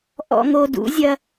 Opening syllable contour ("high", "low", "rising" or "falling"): high